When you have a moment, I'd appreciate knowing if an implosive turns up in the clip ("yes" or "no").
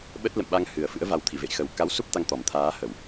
yes